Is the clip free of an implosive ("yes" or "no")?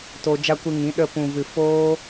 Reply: no